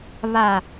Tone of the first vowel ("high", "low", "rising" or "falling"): low